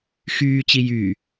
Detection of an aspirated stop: absent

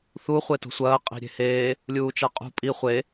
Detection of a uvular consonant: present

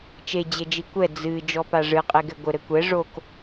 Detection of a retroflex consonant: present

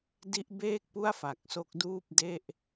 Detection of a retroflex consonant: absent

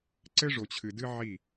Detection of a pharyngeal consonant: present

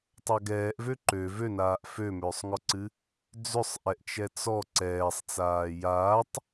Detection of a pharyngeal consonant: absent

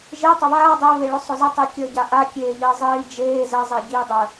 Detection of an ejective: absent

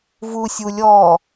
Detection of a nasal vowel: absent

